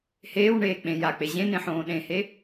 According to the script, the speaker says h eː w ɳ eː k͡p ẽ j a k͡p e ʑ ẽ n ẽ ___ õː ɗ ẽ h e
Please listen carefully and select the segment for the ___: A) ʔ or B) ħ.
B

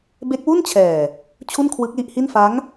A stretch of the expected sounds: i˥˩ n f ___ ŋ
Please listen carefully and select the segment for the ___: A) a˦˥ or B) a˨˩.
A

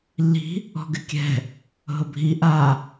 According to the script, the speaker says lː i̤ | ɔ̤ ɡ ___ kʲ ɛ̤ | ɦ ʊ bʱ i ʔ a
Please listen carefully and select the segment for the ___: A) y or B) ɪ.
B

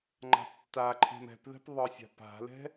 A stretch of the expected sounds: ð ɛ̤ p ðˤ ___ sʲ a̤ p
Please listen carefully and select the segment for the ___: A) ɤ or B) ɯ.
B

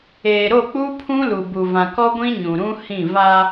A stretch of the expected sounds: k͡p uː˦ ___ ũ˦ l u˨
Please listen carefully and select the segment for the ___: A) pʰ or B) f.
A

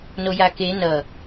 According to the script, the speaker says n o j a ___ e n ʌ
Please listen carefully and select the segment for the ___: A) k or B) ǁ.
A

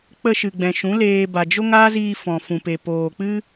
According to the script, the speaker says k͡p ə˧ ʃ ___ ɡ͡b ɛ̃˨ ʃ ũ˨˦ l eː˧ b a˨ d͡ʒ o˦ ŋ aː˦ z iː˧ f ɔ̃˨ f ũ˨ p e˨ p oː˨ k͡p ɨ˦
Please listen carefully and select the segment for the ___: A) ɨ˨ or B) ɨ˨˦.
A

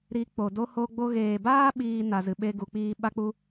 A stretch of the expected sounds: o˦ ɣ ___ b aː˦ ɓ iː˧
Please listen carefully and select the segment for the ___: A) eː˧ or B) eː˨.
B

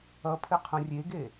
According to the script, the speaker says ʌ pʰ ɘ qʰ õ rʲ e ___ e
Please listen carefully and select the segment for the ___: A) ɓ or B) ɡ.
B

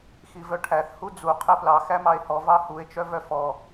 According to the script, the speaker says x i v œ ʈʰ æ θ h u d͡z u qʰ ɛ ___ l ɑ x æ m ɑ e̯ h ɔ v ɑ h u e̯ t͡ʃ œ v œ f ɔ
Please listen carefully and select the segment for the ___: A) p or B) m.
A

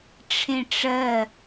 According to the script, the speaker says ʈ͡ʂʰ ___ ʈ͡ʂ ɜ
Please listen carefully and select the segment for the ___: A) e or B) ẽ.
B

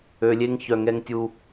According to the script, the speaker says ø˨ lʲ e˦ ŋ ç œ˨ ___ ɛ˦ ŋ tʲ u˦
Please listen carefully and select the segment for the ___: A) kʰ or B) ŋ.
B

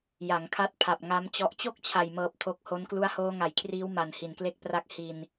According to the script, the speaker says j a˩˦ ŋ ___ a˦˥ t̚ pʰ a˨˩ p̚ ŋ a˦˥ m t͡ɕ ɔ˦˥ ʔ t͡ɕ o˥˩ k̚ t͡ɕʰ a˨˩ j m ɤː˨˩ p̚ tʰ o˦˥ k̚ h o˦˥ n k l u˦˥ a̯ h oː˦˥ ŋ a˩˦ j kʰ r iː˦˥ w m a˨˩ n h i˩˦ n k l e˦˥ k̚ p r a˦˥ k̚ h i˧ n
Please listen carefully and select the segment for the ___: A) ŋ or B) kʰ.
B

